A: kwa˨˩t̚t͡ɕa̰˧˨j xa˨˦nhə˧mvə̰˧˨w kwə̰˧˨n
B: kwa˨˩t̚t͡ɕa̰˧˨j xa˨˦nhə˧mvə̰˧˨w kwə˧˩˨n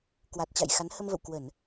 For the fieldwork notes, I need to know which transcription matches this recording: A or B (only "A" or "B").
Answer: B